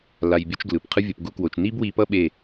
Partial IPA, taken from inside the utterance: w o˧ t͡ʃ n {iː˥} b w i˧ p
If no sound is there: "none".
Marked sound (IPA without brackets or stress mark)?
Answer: i˥